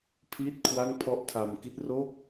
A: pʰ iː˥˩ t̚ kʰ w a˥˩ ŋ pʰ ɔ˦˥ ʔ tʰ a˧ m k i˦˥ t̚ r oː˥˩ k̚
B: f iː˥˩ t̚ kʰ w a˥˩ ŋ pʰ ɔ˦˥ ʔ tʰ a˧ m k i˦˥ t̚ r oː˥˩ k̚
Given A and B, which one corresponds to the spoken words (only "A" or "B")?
A